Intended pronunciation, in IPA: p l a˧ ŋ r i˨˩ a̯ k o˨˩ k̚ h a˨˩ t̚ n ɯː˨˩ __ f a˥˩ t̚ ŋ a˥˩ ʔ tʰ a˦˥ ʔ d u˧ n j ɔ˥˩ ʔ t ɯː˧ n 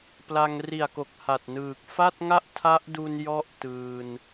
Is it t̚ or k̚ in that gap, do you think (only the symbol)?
k̚